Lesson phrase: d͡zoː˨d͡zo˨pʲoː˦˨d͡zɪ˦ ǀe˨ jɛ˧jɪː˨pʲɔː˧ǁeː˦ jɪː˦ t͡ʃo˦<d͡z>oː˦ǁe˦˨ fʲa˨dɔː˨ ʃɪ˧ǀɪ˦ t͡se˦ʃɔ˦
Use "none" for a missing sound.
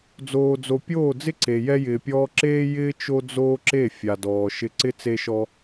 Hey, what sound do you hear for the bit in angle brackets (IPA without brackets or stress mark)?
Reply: d͡z